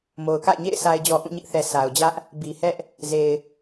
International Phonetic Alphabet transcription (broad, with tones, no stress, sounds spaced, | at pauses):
m o˨ ʊ̯ k a̰˦˨ ɪ̯ ɲ ḛ˦˨ ɪ̯ s a˨ ɪ̯ d͡ʑ ɔ˨ ʔ ũ˦˨ ɲ ɪ˦ ʔ θ ɛ˨ s a˨ ʊ̯ d͡ʑ ä˦ ʔ | b i˨ h ɛ˦ ʔ | z e˨ ɪ̯